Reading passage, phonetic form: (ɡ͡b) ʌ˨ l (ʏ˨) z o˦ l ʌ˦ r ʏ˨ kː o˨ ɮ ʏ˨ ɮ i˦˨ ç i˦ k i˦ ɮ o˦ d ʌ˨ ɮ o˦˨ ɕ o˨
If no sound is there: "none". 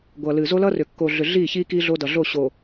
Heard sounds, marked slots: ɡʷ, ɨ˨

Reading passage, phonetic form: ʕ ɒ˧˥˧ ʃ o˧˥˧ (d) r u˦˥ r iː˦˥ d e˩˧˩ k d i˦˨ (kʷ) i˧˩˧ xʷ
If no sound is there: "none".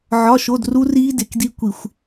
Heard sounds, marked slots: d, kʷ

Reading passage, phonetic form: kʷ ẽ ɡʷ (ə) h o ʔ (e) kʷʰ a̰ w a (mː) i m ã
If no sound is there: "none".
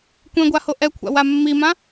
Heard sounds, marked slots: a, ɛ, mː

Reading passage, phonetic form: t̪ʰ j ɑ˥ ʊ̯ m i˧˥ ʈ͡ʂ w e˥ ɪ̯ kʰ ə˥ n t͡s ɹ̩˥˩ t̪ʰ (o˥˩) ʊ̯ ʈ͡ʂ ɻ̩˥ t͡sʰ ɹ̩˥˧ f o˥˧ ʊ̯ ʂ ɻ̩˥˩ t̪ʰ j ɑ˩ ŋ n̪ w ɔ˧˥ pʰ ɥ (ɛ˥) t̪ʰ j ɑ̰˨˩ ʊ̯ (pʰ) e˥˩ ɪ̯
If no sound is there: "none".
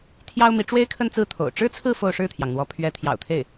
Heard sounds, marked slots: o̰˨˩, ɛ˧˥, t̪ʰ

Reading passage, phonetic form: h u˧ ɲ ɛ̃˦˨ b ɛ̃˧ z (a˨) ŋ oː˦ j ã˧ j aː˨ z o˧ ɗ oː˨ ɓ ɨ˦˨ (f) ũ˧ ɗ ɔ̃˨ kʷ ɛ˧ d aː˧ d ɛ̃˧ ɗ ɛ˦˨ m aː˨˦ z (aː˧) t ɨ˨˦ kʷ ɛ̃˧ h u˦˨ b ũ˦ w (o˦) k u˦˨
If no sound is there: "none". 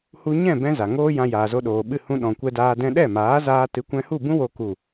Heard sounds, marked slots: a˨, h, aː˧, o˦

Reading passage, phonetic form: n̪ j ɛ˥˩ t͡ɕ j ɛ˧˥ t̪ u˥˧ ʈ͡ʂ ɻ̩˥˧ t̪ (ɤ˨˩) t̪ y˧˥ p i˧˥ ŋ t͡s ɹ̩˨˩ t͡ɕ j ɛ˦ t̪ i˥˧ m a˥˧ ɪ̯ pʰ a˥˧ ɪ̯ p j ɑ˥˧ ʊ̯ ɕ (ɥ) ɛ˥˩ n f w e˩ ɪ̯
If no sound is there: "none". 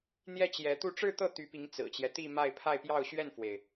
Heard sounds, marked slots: ɤ˥˩, ɥ

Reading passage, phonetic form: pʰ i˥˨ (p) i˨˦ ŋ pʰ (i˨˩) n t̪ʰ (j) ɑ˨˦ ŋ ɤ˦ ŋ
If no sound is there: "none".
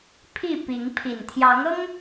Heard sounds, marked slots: p, i˨˩, j

